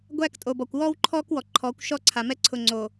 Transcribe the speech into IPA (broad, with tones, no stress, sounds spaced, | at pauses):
ɡʷ æː˦ k tʼ o˨ b ɔ˨ kʷ w ɔː˦ w ǃʰ ɔː˦ k w ɔ˨ ǃʰ ɔː˨˦ kʷ ʃ ɔ˦ ǀʰ a˨ m ɛ˦ ǀʰ ʊ˨ ŋ͡ǀ o˨